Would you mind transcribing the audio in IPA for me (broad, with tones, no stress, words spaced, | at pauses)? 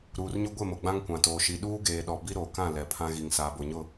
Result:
ɾuː˨rɲʊ˦ ɡʷe˦˨mo˨ ɡ͡bã˦ŋkʷã˨toː˨ ʃi˨ɗuː˦ɡeː˨ɗɔ˨ bi˦ɾoː˨ kã˦˨ lɛ˨ pʰã˦ɣi˨ŋ saː˨bo˨ɲʊ˦˨